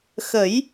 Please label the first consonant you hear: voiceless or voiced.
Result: voiceless